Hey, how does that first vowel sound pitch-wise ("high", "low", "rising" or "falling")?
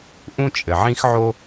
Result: high